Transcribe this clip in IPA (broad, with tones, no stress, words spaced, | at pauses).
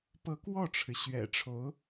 pɤ˧˥kwɔ˥˩ʈ͡ʂʰɻ̩˩ ɕɥɛ̰˨˩ʈ͡ʂʰo˧˥ʊ̯